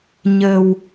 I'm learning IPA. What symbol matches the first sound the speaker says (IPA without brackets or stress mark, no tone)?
ɲ